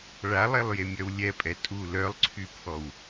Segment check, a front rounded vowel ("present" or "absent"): present